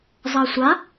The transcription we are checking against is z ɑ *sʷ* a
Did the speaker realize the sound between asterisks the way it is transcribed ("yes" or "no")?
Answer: yes